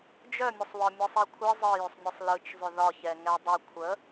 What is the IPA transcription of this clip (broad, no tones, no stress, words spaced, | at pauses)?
d͡ʒœmʲəsˤwɒ mʲɯsˤikʷʰɯ zˤɯjʏsˤnʲɯsˤ lɯt͡ʃzˤʏ ðɒçɛ ŋɛdˤə kʷʰə